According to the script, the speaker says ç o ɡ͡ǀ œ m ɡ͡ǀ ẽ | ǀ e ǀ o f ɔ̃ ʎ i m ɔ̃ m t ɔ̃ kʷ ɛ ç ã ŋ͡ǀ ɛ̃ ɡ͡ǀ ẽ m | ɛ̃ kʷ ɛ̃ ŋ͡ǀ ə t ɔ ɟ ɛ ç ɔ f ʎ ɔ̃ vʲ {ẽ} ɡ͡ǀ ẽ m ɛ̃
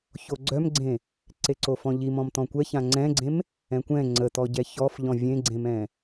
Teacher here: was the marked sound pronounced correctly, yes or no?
yes